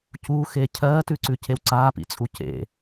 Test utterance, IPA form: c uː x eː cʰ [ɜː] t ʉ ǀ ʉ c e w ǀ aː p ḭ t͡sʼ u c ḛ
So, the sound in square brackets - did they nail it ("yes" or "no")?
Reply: yes